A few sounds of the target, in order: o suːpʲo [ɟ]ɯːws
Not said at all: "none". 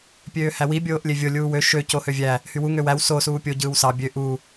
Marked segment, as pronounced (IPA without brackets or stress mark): ɟ